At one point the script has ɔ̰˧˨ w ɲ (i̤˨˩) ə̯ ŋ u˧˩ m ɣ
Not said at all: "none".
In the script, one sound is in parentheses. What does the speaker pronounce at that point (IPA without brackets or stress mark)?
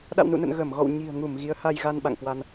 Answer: i̤˨˩